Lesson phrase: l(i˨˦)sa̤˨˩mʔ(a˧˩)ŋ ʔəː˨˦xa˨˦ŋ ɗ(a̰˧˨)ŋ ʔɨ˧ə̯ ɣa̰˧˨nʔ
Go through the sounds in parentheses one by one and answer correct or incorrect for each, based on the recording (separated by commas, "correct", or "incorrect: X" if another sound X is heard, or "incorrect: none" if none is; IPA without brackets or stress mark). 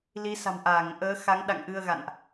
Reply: correct, incorrect: aː˧˩, correct